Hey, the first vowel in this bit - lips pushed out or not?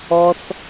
yes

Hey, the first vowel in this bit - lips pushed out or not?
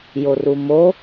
yes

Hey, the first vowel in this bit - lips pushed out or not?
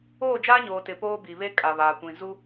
yes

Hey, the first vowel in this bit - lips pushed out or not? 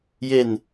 no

